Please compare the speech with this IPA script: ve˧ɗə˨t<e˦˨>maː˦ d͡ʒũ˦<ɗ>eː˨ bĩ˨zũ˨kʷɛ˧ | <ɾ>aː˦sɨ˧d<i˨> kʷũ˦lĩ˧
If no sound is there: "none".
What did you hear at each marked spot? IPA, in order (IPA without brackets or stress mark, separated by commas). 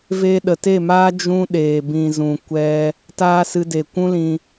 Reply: e˦˨, ɗ, t, e˨